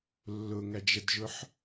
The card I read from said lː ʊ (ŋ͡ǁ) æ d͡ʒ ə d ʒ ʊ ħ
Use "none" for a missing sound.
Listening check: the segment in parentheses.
ŋ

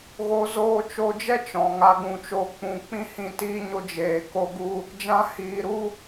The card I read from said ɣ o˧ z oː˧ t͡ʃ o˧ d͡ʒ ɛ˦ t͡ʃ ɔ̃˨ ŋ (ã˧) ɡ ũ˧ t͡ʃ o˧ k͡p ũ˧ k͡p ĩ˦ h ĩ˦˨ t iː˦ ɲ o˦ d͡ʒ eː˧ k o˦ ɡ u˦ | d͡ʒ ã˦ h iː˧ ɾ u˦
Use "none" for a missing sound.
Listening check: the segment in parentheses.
a˧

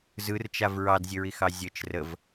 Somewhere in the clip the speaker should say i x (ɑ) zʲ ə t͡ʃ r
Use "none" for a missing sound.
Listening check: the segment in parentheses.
ɑ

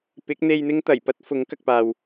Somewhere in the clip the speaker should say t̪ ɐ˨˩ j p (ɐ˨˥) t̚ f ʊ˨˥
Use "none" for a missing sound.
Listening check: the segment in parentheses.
ɐ˥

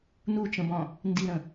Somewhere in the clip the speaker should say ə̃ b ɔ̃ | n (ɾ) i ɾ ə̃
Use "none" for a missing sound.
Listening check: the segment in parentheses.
d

